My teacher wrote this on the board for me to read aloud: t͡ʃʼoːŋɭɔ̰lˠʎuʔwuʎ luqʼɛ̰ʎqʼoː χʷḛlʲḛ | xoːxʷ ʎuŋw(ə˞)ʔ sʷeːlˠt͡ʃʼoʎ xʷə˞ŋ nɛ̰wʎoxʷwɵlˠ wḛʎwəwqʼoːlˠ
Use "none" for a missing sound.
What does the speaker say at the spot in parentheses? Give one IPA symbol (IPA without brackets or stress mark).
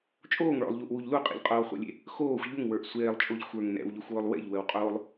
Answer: ə˞